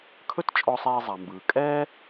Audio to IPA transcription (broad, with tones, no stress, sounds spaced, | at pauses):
kʰ ɵ˥ t t͡ʃʼ ɔ˧ sˤ ɛː˧ zˤ a˩ m b ɯː˩ kʼ ɛː˥